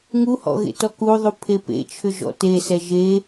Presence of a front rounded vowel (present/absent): present